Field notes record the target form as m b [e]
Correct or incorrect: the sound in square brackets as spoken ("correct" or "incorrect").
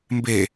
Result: correct